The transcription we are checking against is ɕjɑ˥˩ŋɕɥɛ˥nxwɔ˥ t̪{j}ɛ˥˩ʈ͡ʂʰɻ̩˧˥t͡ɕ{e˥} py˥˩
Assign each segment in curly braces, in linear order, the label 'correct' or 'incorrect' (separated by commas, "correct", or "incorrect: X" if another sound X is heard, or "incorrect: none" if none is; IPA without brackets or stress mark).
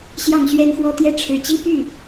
correct, incorrect: i˥